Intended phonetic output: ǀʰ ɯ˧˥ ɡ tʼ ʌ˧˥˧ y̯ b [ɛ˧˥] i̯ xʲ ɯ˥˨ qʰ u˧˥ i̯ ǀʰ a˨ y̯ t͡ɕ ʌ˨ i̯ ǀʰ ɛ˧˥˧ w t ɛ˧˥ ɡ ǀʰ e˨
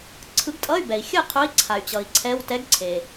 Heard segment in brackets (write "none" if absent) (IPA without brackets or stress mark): ɛ˨